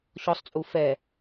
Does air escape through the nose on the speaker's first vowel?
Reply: no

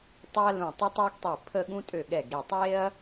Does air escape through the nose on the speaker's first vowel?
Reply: no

